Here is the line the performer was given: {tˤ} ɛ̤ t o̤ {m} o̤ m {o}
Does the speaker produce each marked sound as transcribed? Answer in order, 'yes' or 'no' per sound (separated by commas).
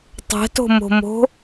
yes, yes, no